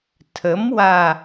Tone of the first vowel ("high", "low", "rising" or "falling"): rising